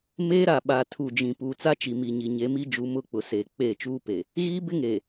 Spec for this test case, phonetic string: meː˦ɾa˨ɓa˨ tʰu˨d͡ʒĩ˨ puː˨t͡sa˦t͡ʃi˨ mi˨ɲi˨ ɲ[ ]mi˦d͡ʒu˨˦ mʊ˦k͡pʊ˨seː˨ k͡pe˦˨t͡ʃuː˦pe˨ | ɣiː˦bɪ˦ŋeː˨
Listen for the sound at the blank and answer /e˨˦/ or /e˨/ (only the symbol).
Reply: e˨˦